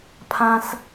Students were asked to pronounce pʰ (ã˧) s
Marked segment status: correct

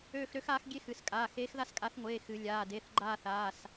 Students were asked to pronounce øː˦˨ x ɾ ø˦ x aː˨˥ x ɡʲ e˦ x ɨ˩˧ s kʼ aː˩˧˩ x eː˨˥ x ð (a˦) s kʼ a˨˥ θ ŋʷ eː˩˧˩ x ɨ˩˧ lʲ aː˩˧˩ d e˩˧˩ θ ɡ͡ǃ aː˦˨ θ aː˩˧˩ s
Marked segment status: correct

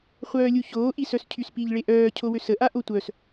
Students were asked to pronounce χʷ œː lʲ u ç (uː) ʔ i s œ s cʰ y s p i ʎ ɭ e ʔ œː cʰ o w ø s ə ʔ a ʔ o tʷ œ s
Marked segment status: incorrect: oː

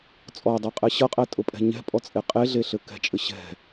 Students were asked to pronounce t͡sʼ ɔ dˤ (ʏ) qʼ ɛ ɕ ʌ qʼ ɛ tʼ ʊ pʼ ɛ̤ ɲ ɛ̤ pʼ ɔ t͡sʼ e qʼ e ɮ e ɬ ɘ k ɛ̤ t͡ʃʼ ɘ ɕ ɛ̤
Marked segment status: incorrect: ɛ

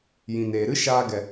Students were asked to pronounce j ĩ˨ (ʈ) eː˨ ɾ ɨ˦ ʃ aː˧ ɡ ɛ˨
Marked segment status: incorrect: n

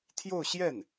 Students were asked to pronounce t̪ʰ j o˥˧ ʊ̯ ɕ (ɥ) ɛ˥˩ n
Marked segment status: incorrect: j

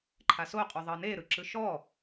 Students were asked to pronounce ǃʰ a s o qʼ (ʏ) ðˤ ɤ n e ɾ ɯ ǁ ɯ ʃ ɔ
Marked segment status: incorrect: u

